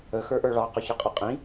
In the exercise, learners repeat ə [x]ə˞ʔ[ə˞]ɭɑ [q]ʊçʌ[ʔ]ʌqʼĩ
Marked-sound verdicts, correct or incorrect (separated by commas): correct, correct, correct, incorrect